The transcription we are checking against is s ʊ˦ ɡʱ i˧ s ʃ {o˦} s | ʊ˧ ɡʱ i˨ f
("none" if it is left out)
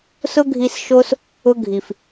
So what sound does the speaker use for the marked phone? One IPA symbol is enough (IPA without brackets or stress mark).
o˦